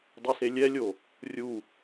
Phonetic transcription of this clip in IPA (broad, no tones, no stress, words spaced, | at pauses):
dˤɛselʲɛlʲo | rʲu